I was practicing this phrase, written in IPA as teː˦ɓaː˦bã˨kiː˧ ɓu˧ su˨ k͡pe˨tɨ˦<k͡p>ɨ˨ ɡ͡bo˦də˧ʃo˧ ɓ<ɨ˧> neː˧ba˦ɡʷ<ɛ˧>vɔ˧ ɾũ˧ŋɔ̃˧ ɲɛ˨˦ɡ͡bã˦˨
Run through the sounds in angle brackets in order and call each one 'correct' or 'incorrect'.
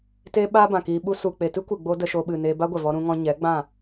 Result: incorrect, incorrect, incorrect

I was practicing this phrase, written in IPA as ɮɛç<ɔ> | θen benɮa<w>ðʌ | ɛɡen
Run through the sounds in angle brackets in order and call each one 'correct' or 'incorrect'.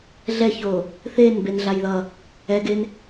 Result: incorrect, incorrect

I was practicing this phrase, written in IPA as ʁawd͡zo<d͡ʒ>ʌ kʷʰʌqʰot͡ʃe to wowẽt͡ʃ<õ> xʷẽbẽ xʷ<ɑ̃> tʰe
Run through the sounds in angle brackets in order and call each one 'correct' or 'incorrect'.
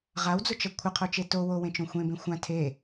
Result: incorrect, correct, incorrect

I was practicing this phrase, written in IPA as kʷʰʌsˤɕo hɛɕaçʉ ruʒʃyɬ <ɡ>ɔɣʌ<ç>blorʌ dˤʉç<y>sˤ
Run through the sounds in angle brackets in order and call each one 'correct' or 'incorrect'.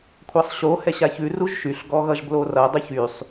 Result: correct, incorrect, correct

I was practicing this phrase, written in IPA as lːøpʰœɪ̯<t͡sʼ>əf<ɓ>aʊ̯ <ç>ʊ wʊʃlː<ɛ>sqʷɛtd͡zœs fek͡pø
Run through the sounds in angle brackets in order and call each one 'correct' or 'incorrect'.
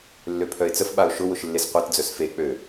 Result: incorrect, correct, incorrect, incorrect

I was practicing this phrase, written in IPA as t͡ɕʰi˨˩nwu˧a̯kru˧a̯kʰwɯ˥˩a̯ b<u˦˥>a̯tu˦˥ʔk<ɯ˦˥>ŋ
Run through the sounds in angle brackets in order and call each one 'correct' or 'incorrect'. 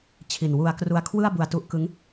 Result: incorrect, correct

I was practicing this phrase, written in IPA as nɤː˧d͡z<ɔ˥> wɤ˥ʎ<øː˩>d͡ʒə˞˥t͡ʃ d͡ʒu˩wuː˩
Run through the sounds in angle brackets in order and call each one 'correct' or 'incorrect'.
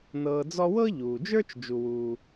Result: correct, incorrect

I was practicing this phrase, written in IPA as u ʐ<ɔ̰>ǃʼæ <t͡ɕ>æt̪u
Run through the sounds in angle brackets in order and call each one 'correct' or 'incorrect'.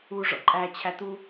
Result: correct, incorrect

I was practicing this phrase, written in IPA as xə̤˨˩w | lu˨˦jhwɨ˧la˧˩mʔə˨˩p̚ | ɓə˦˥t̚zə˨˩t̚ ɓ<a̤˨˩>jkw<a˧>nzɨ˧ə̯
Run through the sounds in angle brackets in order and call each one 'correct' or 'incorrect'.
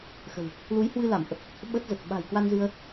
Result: correct, correct

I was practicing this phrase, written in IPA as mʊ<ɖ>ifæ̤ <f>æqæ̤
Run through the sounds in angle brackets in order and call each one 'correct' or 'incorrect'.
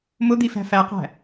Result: incorrect, correct

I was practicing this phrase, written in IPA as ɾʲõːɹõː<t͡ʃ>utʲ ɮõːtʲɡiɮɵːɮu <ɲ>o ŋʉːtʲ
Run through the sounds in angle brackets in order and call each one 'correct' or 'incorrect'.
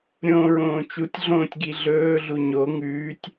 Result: correct, correct

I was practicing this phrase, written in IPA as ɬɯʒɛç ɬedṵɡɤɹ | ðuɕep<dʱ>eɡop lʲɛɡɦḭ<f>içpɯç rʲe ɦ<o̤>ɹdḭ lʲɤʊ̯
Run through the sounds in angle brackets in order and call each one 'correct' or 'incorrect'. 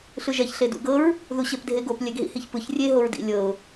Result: correct, incorrect, incorrect

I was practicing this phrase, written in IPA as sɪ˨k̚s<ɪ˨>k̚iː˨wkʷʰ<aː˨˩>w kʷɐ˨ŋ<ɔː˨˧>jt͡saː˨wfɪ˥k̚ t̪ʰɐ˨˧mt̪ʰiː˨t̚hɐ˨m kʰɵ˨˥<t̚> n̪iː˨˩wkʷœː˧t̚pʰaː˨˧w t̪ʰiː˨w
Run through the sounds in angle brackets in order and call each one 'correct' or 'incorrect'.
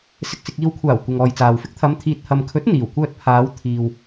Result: correct, correct, incorrect, correct

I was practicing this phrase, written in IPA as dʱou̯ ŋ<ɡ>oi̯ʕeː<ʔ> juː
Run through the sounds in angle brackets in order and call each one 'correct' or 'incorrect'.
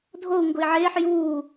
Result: correct, incorrect

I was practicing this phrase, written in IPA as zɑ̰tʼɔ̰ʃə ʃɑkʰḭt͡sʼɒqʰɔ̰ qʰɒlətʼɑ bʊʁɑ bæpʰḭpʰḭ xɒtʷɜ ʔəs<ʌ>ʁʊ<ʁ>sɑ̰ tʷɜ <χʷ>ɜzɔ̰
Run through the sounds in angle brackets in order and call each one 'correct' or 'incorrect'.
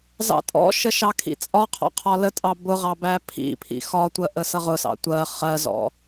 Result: correct, incorrect, incorrect

